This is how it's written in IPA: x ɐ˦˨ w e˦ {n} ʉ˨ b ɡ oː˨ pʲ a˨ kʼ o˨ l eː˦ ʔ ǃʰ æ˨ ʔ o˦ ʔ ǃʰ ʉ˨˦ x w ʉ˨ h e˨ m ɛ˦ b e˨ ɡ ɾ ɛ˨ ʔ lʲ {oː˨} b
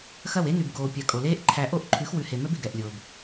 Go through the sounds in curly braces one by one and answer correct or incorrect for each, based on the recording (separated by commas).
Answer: correct, correct